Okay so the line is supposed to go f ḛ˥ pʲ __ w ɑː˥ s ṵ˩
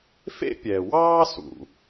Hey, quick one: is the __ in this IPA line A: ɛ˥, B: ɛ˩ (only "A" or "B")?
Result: B